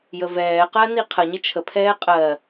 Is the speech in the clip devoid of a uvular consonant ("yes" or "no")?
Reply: no